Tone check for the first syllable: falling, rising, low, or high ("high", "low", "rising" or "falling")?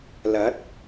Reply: rising